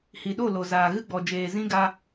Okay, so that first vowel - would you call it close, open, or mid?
close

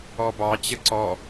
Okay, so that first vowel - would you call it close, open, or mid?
mid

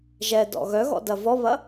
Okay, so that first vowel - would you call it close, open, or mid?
mid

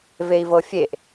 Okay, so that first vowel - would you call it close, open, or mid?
mid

